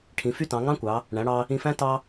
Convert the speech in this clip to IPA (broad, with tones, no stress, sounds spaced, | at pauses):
ʈʰ ĩ˩˧ f y˥ t ɑ̃˩˧ ŋ ɑ̃˥ kʷ ɑ˩˧ | ɳ æ̃˩˧ ɽ ɑ˧ | ĩ˧ f æ̃˥ t ɑ˥